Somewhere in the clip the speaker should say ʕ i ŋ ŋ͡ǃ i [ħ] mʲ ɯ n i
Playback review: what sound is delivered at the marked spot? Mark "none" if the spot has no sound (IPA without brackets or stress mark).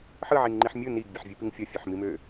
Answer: ħ